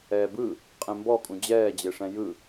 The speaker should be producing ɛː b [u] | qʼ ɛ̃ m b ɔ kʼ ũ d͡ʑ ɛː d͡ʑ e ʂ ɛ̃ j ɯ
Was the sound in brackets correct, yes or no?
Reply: no